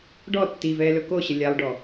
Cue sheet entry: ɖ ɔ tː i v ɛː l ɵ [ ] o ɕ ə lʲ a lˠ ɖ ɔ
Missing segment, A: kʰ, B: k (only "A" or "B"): B